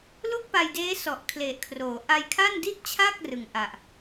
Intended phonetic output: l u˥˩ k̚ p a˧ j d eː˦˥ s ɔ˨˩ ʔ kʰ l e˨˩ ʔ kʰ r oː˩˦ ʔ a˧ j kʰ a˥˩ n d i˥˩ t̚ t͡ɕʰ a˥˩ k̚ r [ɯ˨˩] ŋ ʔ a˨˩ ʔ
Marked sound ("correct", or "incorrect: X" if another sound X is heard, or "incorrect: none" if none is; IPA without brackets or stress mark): correct